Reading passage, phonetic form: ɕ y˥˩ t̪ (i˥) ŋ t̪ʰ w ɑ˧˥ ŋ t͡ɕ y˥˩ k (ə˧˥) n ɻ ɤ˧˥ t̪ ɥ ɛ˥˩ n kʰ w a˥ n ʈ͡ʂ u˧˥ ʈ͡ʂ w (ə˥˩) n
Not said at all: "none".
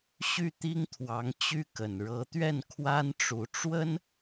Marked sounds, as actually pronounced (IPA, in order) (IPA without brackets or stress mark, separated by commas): i˥, ə˨˩, ə˥